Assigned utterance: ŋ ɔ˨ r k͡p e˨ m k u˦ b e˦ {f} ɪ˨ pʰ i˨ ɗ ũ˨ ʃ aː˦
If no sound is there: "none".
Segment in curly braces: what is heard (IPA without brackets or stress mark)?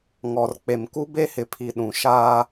h